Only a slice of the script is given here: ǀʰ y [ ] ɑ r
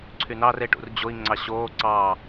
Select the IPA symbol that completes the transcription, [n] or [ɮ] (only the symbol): n